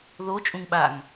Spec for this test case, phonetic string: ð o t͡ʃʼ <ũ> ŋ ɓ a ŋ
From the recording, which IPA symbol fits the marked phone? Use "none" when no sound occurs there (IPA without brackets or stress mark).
ũ